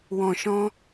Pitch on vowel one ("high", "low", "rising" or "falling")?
low